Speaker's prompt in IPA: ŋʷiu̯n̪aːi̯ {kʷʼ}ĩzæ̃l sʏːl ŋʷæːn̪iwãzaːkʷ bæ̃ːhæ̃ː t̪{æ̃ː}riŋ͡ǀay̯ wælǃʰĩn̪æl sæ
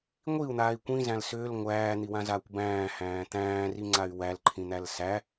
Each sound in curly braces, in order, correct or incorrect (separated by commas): incorrect, correct